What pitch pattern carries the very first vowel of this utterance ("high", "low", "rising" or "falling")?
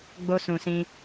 high